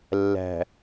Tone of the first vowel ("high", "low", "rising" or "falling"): low